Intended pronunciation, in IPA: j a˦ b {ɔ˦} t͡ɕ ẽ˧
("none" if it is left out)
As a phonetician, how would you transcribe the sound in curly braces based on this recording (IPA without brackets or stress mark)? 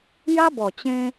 ɔ˨˩